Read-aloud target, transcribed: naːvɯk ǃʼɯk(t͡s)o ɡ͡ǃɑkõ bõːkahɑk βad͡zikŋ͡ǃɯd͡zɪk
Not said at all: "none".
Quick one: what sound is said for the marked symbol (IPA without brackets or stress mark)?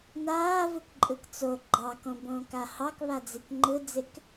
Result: t͡s